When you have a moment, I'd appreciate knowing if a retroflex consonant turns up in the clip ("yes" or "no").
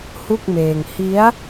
no